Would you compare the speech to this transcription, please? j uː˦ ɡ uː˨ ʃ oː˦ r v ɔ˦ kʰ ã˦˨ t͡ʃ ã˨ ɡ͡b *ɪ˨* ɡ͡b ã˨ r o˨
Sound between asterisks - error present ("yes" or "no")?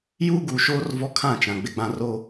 no